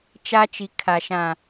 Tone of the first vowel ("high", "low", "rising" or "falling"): high